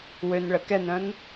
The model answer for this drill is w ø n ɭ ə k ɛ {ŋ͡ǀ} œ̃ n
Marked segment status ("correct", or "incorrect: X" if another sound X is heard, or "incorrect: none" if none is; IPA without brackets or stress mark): incorrect: n